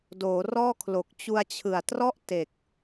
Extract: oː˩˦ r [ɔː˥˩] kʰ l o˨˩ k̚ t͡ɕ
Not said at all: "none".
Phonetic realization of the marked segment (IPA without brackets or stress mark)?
ɔː˥˩